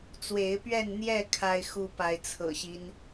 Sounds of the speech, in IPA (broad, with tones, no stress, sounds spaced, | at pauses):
t͡s w e˨˦ ɪ̯ p ɥ ɛ˥˨ n n̪ j ɛ˥˨ kʰ a˦ ɪ̯ x u˦ p a˨˦ ɪ̯ t͡sʰ ɤ̰˨˩ ɕ i˦ n